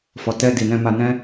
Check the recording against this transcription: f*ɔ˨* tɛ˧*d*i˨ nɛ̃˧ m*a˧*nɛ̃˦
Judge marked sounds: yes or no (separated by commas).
yes, yes, yes